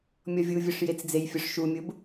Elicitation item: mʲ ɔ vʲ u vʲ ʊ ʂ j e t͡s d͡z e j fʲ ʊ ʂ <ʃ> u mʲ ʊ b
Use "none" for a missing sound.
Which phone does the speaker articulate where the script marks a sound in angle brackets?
ʃ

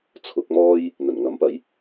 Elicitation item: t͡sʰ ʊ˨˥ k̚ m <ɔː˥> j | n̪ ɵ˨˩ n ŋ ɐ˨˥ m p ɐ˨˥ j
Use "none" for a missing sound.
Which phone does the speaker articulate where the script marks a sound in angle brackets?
ɔː˥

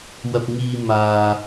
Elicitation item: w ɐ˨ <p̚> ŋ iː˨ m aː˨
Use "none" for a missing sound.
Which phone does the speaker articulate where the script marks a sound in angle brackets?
p̚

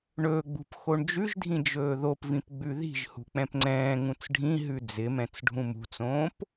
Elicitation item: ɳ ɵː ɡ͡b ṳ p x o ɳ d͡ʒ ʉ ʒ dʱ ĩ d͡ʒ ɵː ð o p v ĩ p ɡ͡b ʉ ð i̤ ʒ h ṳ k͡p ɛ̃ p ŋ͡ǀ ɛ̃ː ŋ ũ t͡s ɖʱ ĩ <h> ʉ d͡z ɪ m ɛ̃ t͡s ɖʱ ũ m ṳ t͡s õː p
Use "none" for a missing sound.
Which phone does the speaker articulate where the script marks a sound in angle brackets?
ɦ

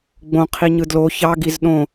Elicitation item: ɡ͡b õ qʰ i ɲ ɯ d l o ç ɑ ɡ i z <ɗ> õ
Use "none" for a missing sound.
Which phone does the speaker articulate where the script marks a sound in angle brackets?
ɗ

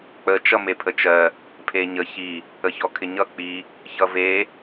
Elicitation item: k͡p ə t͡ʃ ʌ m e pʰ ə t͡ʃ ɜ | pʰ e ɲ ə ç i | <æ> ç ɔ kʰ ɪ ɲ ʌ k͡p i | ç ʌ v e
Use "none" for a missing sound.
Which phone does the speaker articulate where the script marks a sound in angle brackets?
ə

